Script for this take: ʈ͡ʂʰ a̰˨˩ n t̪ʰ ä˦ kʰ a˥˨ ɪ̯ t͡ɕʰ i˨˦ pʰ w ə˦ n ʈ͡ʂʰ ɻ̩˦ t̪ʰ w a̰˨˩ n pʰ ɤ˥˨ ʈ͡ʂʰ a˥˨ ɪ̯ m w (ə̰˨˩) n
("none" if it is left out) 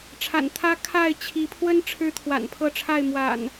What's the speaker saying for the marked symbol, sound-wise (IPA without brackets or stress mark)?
a̰˨˩